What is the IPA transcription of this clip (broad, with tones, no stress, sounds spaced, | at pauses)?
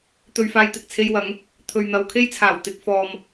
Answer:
t̪ ɵ˧ ɥ f aː˧ j t̪ ɪ˨ k̚ t͡sʰ e˧ j w ɐ˨˥ ŋ | t̪ʰ ɵ˨ ɥ n̪ ɐ˨˧ w kʰ e˥ j t͡sʰ aː˨˩ w t̪ ɪ˧ k̚ f ɔː˧ m